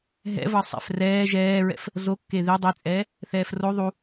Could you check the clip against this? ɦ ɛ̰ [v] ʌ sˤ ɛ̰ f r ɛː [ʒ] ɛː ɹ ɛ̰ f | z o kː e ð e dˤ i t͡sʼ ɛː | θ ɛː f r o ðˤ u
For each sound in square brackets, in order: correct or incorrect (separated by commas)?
correct, correct